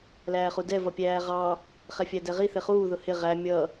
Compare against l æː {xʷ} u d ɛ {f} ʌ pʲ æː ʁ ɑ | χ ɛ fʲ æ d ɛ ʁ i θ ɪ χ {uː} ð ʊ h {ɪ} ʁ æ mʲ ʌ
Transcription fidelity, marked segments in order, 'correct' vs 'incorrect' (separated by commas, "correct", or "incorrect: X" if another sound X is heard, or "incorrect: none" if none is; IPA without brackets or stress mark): incorrect: χ, incorrect: v, correct, correct